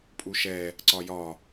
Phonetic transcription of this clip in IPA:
pʼuʃɛ | ǀɒjɒ

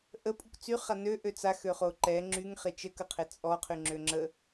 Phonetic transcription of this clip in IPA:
ʔəpʼuk t͡syχa nøʔø t͡saxøχo ǃɛ ŋ͡ǁyŋχe t͡ʃəkəqʰe t͡sʼɔqʰyŋ͡ǁø ŋ͡ǁə

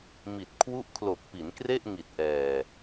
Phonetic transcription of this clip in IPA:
mi˨˩t̚ kʰwu˦˥ʔkʰlo˨˩k̚pi˩˦n kre˥˩ʔŋi˨˩t̚ʔɛː˨˩

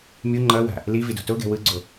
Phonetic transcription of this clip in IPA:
mʲu ŋ͡ǃʌwa̤ | livido̤ toɡɛ̤ wɯɡ͡ǀo

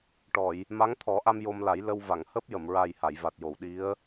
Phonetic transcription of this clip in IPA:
ʈɔ˨˩˨j | ma˧˥ŋt̪ʰɔ˨˩˦ʔa˧m jo˧mla˨˩˦j lə˧w va˨˩˨ŋhəː˦˥p̚jə˨˩˨m ɹa˨˩j ha˨˩˨jva˨˩t̚jo˨˩˨wɗi˧˥ə̯

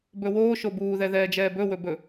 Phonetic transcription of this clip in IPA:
bɵwoː ʃobuːðɛðɛː d͡ʒɛːbɵ wɵbɵ

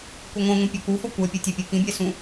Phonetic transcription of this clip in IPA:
kʷeŋʷɛ̃ŋʷĩ pʲɤkufɔ kʷɛpʲɯ tʲepʲɯkĩbʲɛ sũ

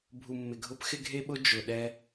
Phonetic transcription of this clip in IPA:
bʱu˨mːɪ˨ɡʱʊ˦p xɪ˦ɡʱe˦ɓʊ˦ d͡ʒʊ˨ɗɛ˦

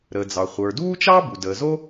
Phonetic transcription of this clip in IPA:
ɾə˩d͡zɑ˩ χʷə˞˩duː˥t͡ʃɑ˥ bu˩ dəː˩zo˥

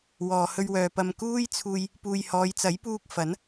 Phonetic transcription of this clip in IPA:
wɔː˨hɵ˧ɥwœː˨pɐ˧m kuː˥jt͡sʰuː˧j | puː˨jhɔː˨˧jt͡sɐ˨˥j puː˧k̚ fɐ˨˥n

